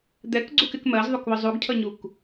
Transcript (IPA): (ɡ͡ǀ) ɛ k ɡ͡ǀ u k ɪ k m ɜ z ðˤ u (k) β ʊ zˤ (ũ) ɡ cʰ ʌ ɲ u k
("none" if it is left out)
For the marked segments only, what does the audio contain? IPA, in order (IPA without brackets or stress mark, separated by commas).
d̪, k, u